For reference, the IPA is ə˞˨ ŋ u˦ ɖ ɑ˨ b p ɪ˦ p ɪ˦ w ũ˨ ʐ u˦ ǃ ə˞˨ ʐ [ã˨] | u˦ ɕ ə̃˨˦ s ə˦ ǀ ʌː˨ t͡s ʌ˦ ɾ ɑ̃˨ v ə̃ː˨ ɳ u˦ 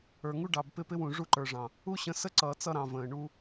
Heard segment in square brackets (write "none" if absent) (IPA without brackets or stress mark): ɑ̃˨